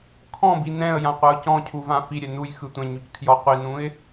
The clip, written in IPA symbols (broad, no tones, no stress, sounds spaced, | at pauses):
kʰ ɔ̃ b i n ɛ̃ ə̯ j ã qʷ a ʊ̯ c ɔ̃ cʰ u v ã f i ɾʲ ɛ n u j x ɯ tʷ ɛ̃ ɲ u c kʰ j ɔ qʷ i n ũ ɪ̯